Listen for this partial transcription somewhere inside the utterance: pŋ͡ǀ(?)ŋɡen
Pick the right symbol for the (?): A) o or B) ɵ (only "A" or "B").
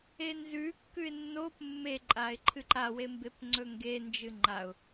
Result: B